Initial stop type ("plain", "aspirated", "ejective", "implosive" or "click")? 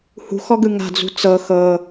plain